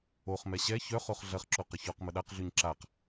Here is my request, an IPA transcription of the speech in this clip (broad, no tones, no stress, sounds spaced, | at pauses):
o χ m ɛ ɕ ɛ ç œ χ o χ ɮ ɐ χ ǁ o q ə ç ɔ q m ə ɗ a q ɮ y ɲ ǁ a q